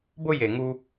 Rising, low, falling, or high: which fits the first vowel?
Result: high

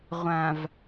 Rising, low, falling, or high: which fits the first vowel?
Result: low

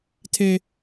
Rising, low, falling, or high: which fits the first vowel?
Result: high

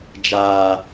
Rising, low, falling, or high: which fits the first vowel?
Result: low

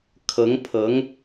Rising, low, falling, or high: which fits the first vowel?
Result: rising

